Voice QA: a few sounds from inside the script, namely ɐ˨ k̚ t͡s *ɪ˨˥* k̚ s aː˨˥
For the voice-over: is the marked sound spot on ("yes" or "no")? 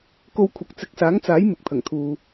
yes